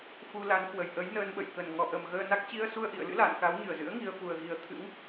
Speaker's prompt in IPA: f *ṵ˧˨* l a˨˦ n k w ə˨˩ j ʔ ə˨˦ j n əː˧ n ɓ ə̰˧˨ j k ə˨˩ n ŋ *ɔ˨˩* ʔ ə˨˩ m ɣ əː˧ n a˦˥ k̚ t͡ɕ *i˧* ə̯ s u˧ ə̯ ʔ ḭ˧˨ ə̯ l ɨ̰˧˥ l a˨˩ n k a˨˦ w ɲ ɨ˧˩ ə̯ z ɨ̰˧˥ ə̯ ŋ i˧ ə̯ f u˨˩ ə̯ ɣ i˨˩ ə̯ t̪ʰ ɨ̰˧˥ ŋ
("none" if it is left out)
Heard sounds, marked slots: u˧, ɔ˨˩, i˧

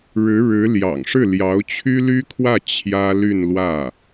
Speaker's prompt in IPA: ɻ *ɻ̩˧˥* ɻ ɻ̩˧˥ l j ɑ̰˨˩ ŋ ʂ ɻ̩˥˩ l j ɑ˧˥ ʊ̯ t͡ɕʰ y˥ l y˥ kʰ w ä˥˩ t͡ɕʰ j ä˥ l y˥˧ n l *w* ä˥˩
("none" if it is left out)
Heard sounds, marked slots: ɻ̩˧˥, w

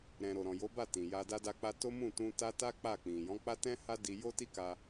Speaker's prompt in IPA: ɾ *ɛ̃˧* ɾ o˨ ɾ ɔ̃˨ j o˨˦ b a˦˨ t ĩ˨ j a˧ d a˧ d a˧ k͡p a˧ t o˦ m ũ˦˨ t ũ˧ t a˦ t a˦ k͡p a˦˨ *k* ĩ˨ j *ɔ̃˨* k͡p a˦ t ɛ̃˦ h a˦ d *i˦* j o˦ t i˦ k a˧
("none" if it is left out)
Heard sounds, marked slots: ɛ̃˨, k͡p, ɔ̃˨˦, i˧

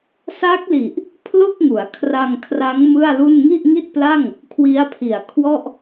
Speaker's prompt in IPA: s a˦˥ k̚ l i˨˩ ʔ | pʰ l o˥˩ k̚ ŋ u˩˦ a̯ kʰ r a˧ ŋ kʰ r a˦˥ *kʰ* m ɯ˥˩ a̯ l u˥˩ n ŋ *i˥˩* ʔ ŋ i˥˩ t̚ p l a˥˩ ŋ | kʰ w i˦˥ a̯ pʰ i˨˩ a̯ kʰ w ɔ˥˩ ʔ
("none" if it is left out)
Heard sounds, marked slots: ŋ, i˥˩

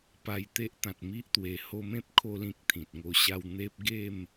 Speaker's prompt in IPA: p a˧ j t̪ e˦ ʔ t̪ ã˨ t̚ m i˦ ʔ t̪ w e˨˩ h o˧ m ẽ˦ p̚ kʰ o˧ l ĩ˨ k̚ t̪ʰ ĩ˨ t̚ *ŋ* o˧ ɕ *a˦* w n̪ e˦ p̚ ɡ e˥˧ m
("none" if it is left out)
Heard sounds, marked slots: ŋ, a˥˧

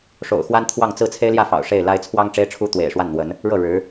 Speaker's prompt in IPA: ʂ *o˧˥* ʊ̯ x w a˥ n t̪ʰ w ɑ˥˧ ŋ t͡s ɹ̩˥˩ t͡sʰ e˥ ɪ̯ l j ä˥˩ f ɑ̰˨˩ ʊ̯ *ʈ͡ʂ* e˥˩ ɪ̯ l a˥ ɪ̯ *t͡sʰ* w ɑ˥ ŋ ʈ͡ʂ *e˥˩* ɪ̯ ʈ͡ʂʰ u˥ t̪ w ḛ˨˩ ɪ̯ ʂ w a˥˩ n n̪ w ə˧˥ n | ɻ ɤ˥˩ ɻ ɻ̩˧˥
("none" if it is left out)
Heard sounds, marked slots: o̰˨˩, ʂ, t͡sʰ, e˥

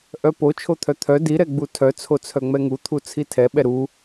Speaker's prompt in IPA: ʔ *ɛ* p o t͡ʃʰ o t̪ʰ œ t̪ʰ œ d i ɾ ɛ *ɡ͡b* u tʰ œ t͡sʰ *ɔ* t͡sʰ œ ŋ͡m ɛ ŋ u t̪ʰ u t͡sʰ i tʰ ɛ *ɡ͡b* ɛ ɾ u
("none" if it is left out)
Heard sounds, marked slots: œ, ɡ͡b, o, ɓ

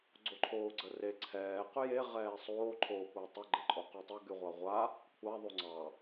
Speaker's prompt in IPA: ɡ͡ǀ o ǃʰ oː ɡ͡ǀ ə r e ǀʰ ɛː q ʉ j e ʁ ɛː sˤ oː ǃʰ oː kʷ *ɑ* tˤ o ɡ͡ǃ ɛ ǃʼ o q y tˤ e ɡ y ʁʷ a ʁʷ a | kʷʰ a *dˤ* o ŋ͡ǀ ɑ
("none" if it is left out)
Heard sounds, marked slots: ɑ, ðˤ

